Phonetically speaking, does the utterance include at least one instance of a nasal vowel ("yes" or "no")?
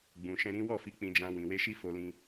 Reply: yes